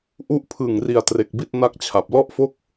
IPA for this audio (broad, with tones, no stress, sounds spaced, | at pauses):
ʔ u˦˥ ʔ pʰ ɯ˨˩ ŋ r i˨˩ a̯ t r e˨˩ k̚ b i˥˩ t̚ n a˥˩ k̚ t͡ɕʰ a˨˩ p̚ l ɔ˥˩ ʔ f o˥˩ k̚